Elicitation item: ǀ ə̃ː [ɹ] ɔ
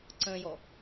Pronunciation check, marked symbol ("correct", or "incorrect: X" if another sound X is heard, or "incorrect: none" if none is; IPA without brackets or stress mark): incorrect: j